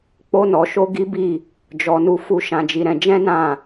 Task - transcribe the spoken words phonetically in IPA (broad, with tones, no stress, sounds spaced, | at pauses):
k͡p o˦ n ɔ˧ ʃ o˦ ɡ i˦ b i˦˨ | d͡ʒ ɔ˧ n u˧ f u˧ ʃ ã˧ d͡ʒ i˧ ɾ ɛ̃˧ d͡ʒ ɛ̃˦ n ã˦˨